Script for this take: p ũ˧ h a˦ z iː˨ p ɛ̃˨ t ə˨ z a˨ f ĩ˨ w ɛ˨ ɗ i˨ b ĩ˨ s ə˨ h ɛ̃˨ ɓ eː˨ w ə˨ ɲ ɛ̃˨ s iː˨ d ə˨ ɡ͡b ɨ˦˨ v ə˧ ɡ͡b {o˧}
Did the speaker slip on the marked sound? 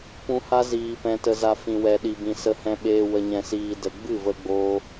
yes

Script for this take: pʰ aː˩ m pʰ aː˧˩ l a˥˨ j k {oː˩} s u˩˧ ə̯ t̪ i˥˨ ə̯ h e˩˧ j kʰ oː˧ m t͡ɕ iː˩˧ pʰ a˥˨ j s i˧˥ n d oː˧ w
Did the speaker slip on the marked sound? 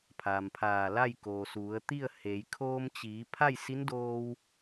no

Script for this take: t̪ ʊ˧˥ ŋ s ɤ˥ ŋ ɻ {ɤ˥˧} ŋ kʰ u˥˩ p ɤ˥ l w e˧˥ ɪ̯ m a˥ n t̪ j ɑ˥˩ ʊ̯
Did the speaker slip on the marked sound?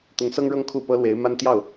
no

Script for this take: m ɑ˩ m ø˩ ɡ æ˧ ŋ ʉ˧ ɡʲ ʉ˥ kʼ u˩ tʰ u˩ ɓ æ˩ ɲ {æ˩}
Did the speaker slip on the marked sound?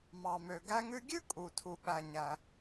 no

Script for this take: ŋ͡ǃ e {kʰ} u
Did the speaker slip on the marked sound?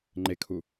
no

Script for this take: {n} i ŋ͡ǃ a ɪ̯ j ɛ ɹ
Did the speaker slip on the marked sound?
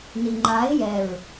no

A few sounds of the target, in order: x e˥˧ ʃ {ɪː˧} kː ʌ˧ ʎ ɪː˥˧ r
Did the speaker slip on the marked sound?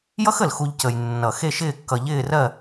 yes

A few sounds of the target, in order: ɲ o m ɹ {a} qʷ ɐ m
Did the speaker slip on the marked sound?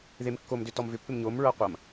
yes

